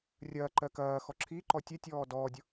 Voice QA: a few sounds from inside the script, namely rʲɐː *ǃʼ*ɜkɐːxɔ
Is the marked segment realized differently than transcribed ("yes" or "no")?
yes